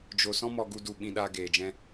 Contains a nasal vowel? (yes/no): yes